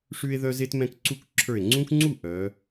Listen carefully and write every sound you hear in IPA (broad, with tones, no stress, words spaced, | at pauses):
ʂʉ˦e̯ðœ˦ze˦t mɛ̃˦kǀu˥˩k ǁʰə˞˧˩e̯ŋ͡ǀũ˦kŋ͡ǀu˥˩ ʔœ˩˧